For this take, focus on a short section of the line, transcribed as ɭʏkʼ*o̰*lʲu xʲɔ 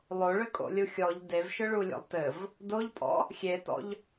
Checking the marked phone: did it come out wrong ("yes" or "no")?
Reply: no